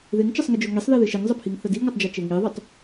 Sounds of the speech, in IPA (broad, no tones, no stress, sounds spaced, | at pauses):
ð ɪ ŋ t͡ʃ ə sˤ ŋ ɪ d͡ʒ o ŋ i sˤ ð e ð ɪ ʃ i ŋ zˤ ə pʰ i ŋ θ ə d i ŋ ɔ tˤ d͡ʒ a t͡ʃ e ŋ i ðˤ ʏ tˤ